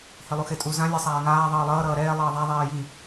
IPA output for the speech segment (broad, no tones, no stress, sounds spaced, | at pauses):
h i lˠ u x e tʼ u z ã lʲ ɛ sˤ aː ŋ aː ðˤ ʌː lˠ ʌː ɾ ʌː ɾ ɛː lˠ ʌː ðˤ a ðˤ ɛː j i